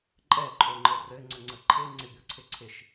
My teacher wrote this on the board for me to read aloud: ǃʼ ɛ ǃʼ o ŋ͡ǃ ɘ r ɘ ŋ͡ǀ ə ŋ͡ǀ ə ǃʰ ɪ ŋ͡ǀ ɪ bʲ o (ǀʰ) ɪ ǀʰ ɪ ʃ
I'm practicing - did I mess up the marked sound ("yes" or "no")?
no